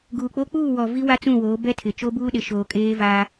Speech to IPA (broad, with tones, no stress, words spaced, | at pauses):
ɡuː˨k͡po˦ k͡puː˦˨wɔ˨ vi˦wa˦t͡sũ˦˨ woː˨˦bɛ˦ tʰɪ˨t͡ʃo˦buː˦ɗɪ˨ ʃoː˨ kʼeː˦vaː˦